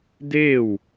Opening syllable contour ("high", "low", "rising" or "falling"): falling